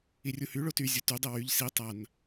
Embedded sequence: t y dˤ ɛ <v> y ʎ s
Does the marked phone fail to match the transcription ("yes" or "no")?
yes